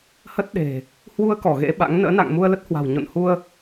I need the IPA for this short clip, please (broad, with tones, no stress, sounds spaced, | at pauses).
h ə˦˥ t̚ ɗ e̤˨˩ | h w u˧ ə̯ k ɔ˧˩ ɣ ḛ˧˥ ɓ a̰˧˥ ŋ n ə̰ː˧˥ n a̰˧˨ ŋ m u˧ ə̯ l ə˦˥ t̚ h w a̤˨˩ w ɲ o̰˧˨ n h u˧ ə̯